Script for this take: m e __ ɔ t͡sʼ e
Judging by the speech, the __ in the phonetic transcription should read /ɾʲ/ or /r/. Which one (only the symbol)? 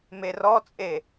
r